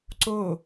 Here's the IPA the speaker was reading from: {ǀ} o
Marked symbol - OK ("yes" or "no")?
yes